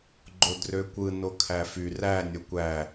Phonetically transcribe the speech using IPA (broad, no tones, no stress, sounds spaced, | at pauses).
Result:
ɡ͡ǃ o d r ø kʷ ɯ n o kʰ æ f y r æ nʲ o kʷ æ